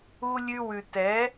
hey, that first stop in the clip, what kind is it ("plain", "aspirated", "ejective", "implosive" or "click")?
plain